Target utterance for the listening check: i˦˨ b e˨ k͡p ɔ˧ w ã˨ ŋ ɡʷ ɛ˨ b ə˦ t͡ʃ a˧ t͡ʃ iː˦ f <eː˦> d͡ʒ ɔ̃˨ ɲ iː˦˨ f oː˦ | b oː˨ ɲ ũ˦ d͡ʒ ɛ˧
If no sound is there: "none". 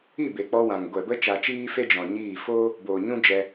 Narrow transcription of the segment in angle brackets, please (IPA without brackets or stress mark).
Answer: e˦